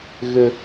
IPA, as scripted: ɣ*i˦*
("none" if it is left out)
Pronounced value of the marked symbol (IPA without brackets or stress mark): ɪ˦